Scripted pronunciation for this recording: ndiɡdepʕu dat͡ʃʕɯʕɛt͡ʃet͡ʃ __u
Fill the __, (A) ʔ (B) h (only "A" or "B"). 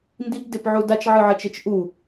A